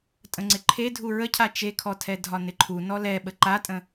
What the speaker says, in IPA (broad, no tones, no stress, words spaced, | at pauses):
tʼə̃ŋ͡ǀɪǃʰe dʱuɹəcʰa t͡ʃekʰɔtʰɛdʱɒ nɪǃʰu nɔlɛ ɓəǃatʼə̃